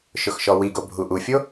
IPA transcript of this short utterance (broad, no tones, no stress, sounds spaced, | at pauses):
ʃ ʊ x ʃ ɔ w i ɡ o bʱ u ʔ u fʲ o